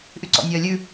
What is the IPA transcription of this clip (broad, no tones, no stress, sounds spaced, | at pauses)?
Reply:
ʔ y ǀ ɔ̰ nʲ œː lʲ ʉ